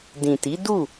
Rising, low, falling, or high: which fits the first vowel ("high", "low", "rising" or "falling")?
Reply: low